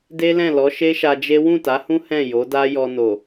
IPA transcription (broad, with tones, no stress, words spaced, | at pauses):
de˦lɛ̃˦˨lɔ˨˦ ʃe˦ʃa˧d͡ʒe˦ wũ˦˨ta˨˦hũ˦ hɛ̃˦˨ jo˨˦da˦jɔ˧no˨